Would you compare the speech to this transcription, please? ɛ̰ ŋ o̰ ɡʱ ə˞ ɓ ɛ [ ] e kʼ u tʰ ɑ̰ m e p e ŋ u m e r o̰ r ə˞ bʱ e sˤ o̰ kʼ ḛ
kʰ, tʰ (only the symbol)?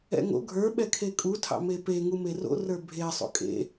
kʰ